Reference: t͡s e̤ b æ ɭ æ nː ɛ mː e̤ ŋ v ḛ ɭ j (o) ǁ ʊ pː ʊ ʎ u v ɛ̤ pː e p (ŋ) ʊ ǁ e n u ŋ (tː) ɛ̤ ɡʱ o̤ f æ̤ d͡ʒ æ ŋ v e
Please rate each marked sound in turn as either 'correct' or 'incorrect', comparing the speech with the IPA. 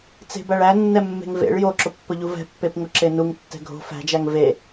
correct, correct, correct

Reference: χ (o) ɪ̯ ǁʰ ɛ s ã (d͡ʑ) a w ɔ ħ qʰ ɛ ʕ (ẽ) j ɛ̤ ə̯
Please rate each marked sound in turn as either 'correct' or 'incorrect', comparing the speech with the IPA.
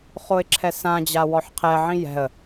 correct, correct, incorrect

